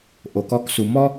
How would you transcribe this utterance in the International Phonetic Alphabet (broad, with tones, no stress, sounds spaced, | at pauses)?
ʔ o˩ k ɔ˧ k s u˩ m ɔ˥